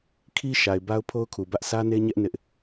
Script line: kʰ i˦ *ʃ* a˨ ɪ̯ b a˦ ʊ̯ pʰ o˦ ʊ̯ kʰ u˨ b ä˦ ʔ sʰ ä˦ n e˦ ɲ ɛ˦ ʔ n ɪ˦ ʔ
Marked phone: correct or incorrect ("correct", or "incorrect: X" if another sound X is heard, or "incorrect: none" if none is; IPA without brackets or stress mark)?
correct